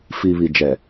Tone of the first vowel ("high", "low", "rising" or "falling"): low